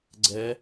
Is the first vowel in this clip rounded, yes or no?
no